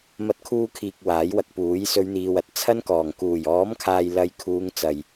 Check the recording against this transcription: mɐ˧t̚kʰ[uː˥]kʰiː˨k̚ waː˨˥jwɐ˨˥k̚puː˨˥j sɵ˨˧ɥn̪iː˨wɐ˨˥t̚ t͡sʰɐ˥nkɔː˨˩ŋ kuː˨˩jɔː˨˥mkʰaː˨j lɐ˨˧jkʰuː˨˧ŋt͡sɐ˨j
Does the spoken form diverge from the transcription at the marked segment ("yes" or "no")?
yes